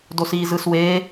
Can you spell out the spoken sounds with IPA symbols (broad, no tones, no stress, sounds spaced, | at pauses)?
d o s iː z ɯ s w eː